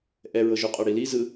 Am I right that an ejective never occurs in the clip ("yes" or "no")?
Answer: no